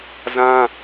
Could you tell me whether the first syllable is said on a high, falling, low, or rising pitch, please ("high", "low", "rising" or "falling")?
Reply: high